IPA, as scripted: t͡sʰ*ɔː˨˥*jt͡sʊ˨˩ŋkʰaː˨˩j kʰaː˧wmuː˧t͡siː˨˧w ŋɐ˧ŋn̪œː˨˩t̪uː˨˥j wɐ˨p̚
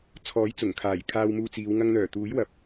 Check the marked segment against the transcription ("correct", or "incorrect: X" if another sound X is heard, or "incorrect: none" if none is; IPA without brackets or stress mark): correct